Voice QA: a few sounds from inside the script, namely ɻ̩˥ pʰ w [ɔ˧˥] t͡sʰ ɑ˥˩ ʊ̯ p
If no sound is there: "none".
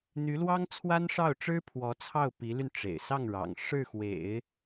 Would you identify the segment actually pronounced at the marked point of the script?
ɔ˧˥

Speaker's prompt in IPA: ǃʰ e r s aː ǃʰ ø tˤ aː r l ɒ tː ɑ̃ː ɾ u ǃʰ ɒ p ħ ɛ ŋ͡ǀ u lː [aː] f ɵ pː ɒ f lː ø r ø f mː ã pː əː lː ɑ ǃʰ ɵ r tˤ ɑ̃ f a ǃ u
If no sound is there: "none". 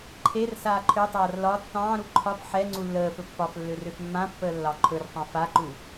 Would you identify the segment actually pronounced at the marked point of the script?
əː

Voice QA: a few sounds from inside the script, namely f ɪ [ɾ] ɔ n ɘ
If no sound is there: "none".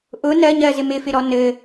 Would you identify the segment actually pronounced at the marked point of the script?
ɾ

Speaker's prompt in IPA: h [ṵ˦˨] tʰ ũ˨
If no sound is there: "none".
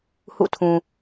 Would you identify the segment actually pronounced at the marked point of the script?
ṵ˦˨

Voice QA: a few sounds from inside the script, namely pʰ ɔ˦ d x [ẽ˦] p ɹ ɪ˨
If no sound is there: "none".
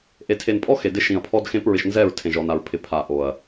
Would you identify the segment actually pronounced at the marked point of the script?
ẽ˦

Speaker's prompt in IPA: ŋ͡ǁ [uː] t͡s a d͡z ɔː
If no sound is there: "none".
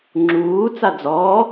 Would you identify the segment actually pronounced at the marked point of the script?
uː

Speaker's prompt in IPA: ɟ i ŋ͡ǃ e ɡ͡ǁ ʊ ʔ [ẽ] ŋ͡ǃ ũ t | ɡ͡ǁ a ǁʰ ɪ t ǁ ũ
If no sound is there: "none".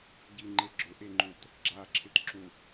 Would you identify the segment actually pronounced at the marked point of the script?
e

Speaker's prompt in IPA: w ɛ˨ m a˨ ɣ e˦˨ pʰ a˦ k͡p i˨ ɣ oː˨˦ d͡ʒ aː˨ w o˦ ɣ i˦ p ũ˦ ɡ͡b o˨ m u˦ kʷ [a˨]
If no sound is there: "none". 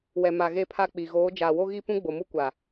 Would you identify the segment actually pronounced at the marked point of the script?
a˨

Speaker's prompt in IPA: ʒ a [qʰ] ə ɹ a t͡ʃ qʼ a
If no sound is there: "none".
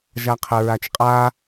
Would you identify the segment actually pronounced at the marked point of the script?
qʰ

